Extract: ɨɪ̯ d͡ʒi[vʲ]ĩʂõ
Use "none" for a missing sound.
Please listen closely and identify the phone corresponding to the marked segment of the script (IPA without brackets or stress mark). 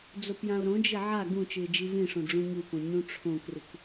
v